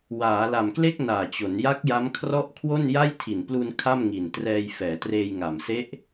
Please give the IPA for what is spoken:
w aː˩˦ l a˨˩ m k l e˥˩ k̚ n aː˨˩ t͡ɕ o˩˦ n j a˦˥ k̚ j a˦˥ m kʰ r ɔ˥˩ ʔ kʰ w o˥˩ n j a˥˩ j tʰ i˨˩ n p l u˧ n kʰ a˥˩ m ŋ i˨˩ n t r ɛː˧ j f ɛː˩˦ t r eː˧ j ŋ a˨˩ m s e˦˥ ʔ

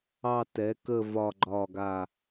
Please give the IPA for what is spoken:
ɑ˦˨ t ɛ˩˥ k ə˦˨ v ɒ˦˨ ɡ͡ǃ ɒ˦˨ ɡ a˦˨

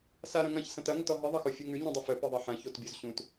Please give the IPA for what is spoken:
s a ɾ ɐ̃ ŋ ɐ̃ ç s ɐ̃ t ɐ ŋ ə t ɔ ɦ ɨ ðˤ ɐ x o fʲ u ŋ ʉ ɲ ũ dˤ ə f œ p ɨ ðˤ ɐ ħ ɐ̃ ç o t bʲ o z ɕ ũ t

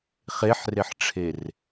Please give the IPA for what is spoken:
χ e ħ r e ħ ʈ͡ʂʰ e r

